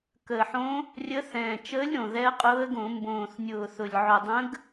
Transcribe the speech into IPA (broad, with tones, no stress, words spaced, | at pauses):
kəː˨˩ħõ˧˥ | rʲə˧˥ θɛ̃ː˨˩t͡ʃəː˧˥lʲ ɾõ˨˩ðɛ˧˥ə̯qʼʊː˧˥ə̯ɡõ˧˩˧ mbõː˨˩θnʲʊː˨˩ θʊ˨˩lʲʕʊ˨˩dˤə̃˧˥ɡ